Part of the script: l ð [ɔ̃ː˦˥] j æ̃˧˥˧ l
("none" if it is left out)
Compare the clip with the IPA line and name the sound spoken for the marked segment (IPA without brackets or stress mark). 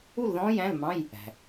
ɔ̃ː˦˥